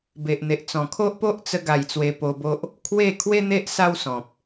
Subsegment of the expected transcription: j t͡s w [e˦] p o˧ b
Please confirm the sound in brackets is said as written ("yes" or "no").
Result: no